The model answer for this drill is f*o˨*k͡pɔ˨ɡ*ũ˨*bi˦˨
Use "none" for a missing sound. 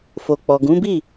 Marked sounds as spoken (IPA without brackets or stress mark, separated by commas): o˨, ũ˨˦